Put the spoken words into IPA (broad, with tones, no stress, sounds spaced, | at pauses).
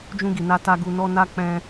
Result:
d͡ʒ ũ˧ ɡ i˨ n a˧ t a˧ ɡ u˧ n ɔ˦ n a˦ k͡p ɛ̃˧